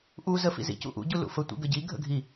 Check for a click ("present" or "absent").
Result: absent